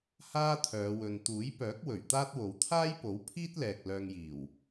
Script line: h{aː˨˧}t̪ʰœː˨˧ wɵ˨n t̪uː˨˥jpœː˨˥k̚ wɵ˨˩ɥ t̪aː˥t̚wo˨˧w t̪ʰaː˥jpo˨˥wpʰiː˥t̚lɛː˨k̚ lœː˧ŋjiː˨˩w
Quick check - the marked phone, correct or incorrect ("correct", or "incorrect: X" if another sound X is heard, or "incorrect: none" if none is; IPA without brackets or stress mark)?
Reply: incorrect: aː˥